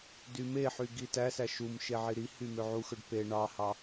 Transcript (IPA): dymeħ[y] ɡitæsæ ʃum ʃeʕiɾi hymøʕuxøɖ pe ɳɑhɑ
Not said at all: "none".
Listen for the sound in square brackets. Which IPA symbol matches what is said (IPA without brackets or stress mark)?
y